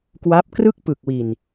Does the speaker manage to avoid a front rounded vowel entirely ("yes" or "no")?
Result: yes